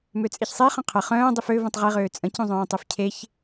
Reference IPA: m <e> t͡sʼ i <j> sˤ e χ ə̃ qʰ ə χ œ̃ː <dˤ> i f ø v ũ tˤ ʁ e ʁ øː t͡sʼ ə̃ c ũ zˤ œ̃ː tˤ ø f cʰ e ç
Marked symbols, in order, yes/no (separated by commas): no, no, yes